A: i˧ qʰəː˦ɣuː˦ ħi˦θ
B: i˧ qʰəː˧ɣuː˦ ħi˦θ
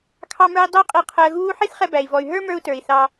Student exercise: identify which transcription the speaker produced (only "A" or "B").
B